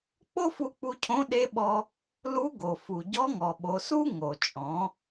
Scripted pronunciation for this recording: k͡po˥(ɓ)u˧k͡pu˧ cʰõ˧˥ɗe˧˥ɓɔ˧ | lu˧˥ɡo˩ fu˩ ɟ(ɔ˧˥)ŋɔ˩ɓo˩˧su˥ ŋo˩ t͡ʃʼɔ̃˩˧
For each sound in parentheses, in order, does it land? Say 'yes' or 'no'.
no, yes

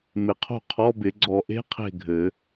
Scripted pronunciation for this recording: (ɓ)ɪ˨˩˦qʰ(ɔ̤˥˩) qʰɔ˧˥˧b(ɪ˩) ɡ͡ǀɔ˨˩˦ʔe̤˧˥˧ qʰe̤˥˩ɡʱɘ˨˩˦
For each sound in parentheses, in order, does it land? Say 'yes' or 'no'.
no, no, no

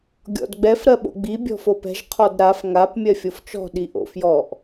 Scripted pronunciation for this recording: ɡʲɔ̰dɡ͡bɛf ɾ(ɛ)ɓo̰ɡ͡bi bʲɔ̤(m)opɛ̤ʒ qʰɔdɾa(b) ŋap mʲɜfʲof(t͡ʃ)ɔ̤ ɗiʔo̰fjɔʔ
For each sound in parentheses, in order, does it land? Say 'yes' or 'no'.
no, no, no, yes

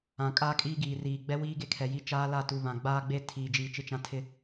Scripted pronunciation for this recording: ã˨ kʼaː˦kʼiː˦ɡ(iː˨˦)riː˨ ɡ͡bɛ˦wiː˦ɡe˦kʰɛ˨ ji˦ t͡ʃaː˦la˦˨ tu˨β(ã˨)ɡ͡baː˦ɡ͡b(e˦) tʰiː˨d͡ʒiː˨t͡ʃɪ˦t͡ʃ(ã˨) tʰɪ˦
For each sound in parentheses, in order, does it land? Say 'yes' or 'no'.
no, yes, yes, no

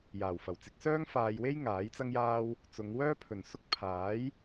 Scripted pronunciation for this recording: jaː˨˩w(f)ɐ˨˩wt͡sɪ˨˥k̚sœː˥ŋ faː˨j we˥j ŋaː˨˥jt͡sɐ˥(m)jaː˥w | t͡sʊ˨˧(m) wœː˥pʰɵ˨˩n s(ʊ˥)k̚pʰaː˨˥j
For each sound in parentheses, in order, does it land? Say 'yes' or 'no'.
yes, no, no, yes

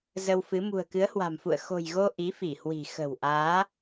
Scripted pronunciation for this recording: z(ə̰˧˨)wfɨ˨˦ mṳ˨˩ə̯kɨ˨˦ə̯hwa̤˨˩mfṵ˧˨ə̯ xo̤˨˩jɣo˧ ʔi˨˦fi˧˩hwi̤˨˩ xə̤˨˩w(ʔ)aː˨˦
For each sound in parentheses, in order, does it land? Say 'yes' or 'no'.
no, yes

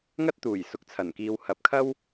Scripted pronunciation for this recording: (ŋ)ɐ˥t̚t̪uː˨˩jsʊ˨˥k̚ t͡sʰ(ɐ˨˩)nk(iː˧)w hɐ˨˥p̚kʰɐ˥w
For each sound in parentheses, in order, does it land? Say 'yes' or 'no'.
yes, yes, yes

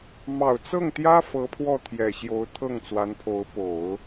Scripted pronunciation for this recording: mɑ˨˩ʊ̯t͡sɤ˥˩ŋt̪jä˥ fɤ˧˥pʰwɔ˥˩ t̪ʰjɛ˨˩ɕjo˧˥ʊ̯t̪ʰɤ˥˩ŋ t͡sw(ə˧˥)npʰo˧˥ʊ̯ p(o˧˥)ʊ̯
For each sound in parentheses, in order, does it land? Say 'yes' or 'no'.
no, no

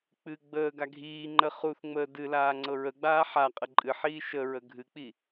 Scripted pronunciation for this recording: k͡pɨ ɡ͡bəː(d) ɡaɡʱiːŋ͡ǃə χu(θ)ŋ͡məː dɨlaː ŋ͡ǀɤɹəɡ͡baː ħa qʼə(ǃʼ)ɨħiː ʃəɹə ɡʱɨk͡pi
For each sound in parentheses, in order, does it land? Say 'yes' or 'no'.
no, yes, yes

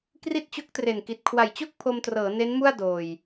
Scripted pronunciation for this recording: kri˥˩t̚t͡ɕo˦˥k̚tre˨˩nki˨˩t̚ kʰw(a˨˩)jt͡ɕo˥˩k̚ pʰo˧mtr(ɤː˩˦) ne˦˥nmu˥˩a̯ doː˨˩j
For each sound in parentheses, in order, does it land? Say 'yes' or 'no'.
yes, yes

